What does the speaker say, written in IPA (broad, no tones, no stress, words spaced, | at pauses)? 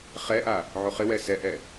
χɛʔa | ʕoχɪwɛ sɛʔɛ